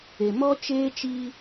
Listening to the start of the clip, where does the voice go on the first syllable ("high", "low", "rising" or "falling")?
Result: low